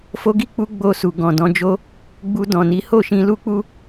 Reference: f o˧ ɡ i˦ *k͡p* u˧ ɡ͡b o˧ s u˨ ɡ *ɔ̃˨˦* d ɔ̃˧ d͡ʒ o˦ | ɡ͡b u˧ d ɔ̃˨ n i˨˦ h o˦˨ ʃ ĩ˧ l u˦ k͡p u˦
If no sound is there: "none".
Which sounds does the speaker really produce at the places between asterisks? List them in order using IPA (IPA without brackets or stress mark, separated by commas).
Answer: k͡p, ɔ̃˨